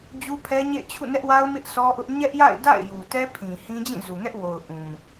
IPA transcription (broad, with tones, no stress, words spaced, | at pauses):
d͡ʑu˦pʰɛ˦ɲḛ˦˨ɪ̯ t͡ɕʰṵ˦˨nɛ˦ʔwa˦ʊ̯ mɪ˦ʔsɔ˦ʔʊ˦ʔ ɲɛ˦ʔja̰˦˨ɪ̯ da̰˦˨ɪ̯ju˨tɛ˦ pʰĩ˨hĩ˦ d͡ʑĩ˦˨zu˨ŋɛ˦ʔwo˨ʊ̯ ʔũ˨